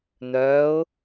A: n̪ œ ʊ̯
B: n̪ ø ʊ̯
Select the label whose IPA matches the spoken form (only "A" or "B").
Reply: A